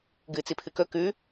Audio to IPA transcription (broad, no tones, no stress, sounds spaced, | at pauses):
ɡ ɨ t͡s i pʰ ɨ k ɵ k ʉ